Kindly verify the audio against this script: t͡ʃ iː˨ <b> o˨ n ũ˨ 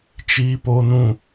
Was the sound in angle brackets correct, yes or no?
no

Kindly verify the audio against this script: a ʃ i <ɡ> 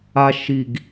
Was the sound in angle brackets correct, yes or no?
yes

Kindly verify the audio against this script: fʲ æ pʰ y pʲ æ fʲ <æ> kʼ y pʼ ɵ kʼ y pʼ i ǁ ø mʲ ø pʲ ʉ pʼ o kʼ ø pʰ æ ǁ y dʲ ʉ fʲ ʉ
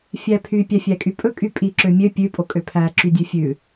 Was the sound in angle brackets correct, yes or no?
yes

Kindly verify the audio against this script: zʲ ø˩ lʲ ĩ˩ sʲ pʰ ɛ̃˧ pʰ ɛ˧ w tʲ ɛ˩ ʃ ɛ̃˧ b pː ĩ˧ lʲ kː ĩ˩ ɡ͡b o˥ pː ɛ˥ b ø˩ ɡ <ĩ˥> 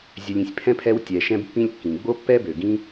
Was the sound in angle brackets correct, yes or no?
no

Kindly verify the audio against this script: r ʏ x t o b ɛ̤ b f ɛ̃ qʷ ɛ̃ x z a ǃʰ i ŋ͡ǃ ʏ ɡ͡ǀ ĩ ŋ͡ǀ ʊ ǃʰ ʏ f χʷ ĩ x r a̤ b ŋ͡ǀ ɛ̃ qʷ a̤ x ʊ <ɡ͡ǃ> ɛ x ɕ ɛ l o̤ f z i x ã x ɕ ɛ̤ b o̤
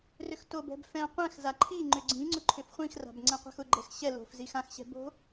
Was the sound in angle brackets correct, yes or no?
yes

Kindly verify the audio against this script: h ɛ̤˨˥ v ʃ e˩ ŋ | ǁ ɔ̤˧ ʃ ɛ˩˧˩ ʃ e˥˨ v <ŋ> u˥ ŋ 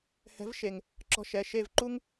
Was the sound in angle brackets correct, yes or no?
no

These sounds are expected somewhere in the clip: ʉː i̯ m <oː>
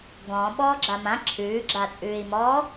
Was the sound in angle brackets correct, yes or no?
no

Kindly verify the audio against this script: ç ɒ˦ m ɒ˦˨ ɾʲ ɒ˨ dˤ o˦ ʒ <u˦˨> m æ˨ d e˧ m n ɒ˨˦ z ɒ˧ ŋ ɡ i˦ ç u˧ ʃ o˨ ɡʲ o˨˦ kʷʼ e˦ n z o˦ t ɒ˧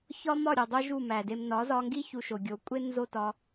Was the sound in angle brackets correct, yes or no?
yes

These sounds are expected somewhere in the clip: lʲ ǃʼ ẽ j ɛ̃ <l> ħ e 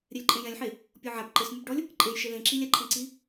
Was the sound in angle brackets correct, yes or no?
no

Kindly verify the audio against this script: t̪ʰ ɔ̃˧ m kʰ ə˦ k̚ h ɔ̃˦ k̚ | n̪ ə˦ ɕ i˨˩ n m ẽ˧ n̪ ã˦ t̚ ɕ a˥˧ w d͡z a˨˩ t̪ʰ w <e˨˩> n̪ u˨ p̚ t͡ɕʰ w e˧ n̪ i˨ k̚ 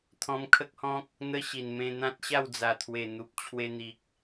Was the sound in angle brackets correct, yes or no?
yes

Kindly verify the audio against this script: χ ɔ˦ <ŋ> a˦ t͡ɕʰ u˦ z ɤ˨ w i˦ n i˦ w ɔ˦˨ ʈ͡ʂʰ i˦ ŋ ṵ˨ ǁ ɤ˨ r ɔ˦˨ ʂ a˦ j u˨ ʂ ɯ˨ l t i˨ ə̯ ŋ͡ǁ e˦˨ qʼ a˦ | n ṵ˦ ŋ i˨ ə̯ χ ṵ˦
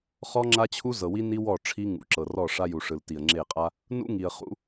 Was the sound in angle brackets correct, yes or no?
no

